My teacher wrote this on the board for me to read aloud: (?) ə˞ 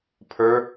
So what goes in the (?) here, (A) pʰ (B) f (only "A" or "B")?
A